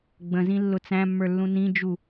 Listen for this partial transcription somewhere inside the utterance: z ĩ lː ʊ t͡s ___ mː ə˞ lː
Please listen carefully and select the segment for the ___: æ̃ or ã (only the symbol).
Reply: æ̃